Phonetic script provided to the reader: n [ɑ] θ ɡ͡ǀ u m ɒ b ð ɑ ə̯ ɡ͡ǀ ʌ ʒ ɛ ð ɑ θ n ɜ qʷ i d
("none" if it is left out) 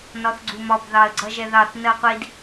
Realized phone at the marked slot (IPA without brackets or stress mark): ɒ